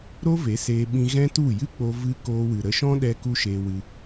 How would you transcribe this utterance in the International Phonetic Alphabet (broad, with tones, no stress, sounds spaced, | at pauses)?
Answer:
ɾ o˦ v e˨˦ s eː˧ ɓ ĩ˧ ɣ ɛ̃˦ t u˦˨ j ɨ˦ k͡p o˧ v ɨ˦ k oː˧ w ɨ˨ ɾ ə˧ ʃ ɔ̃˦ ɗ ɛ˧ k u˦ ʃ eː˧ w ɨ˧